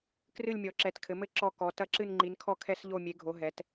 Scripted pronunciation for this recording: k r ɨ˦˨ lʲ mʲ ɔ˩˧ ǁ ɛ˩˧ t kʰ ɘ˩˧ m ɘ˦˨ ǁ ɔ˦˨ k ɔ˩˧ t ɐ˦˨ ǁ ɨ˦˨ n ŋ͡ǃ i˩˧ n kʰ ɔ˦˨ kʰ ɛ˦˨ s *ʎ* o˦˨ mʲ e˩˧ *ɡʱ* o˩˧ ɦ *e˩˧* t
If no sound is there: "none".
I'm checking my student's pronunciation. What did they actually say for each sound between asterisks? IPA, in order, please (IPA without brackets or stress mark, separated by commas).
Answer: ʎ, ɡʱ, ɛ˩˧